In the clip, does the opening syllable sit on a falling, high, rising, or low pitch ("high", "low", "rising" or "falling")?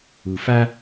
low